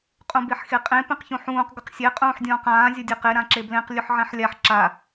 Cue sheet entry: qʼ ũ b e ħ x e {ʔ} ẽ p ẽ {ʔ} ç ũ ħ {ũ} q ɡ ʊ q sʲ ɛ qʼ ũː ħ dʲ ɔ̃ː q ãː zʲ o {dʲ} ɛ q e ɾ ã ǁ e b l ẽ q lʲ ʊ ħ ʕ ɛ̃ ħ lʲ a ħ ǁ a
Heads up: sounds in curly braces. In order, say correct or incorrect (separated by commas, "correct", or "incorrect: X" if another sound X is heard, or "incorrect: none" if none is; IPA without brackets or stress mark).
incorrect: qʼ, incorrect: q, incorrect: ũː, correct